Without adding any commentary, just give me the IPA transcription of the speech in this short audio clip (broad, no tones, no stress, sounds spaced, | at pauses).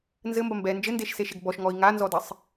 n z ɘ m b ɐ m b ɛ n d͡ʒ ɘ n d e ʃ s e ʃ e ɡ b ɔ ʃ ŋ ɔ i̯ ŋ a n z ɔ d ɘ sˤ